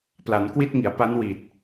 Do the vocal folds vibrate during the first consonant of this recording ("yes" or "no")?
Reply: no